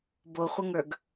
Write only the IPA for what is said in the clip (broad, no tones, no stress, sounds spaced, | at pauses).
b o χʷ ə ŋ ə˞ ɡ